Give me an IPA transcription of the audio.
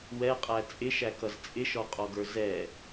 wɛqʼæ t͡sʼɪʃækʌz t͡sʼɪʃɔqʼɔɡə˞ zɛ

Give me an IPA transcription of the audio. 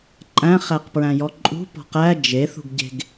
ǃʼæ̃ χæqpɹæ̃jɔǃʼṳ pɔ̤qæ d͡ʒeθṳɡɟe̤ɡ

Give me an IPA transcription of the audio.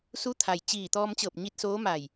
su˧˥t̪ʰa˩jt͡ɕiː˧˩ t̪ɔː˧mt͡ɕɤː˧˩p̚ɲi˧t̚ soː˧˥ma˧˩j

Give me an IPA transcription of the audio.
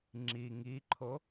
ŋ͡ǁi ŋiǃʰo

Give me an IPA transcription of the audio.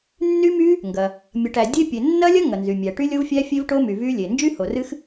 nːy˦˥my˦˥ | ŋɡɐ˩ | mʲɐ˩ʈ æ˩dʲe˦˥ pʲe˩nːɐ˦˥lʲɐ˦˥ ŋɐ˩nzy˩mʲæ˩ʈy˦˥ lʲo˦˥vfʲæ˦˥fʲe˦˥vʈo˦˥ my˩vy˦˥lʲe˩ nd͡ʒy˦˥ho˩rɨ˦˥x

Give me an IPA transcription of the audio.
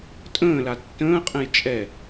tʼə̃ːla tːə̃ːqʼɛ̃j t͡ʃʼɛ

